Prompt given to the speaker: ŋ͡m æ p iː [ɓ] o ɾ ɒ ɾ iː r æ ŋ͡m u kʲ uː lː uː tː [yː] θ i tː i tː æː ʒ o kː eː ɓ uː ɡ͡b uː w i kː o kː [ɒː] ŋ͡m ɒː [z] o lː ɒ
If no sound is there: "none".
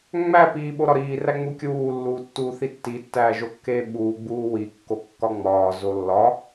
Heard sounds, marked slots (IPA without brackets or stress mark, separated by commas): ɓ, uː, ɒ, z